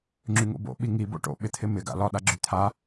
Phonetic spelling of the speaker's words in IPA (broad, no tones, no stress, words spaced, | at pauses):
ŋ͡ǁyŋo̰bo̰ ɓiŋi bo̰ʈo̰ ɓɪt̪ʰɪmɪ ɡa̰lɒ ɗaɡ͡ǁyt̪ʰa